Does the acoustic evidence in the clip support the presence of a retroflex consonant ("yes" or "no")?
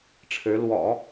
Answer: yes